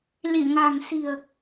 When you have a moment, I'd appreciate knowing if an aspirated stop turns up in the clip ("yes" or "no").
no